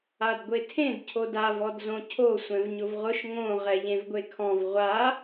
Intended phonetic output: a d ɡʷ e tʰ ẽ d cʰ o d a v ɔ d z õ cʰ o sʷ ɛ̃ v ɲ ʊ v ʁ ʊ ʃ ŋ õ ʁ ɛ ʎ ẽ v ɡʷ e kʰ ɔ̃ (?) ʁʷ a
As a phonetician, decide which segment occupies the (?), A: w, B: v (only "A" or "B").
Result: B